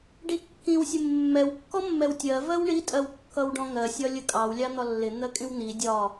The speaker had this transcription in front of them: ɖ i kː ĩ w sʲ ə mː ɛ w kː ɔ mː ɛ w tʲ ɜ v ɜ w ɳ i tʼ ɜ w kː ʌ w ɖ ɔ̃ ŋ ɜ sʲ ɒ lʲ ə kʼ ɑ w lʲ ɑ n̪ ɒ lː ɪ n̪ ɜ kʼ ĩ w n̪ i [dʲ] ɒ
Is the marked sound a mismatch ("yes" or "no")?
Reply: no